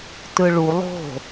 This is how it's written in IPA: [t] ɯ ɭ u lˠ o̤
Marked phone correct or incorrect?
correct